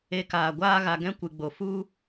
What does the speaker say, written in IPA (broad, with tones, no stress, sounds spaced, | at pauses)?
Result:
e˧ k aː˨ ɡʷ aː˦ ɣ a˧ ɡ ɛ̃˦ kʷ ɨ˨ ɡ͡b o˨ f u˦